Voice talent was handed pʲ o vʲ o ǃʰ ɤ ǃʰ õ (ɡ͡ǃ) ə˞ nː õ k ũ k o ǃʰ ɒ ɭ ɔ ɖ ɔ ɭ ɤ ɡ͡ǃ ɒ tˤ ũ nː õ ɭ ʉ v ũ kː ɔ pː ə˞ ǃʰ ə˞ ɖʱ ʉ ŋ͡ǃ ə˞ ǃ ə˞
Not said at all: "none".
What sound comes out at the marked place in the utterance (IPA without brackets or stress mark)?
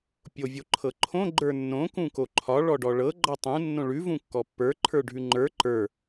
ɡ͡ǃ